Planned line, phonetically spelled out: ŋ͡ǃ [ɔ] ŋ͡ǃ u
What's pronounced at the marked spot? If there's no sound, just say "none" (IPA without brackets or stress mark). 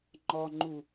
ɔ